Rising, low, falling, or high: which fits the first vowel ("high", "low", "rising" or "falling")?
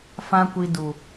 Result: high